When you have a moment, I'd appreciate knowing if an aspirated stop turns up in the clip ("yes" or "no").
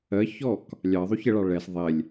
no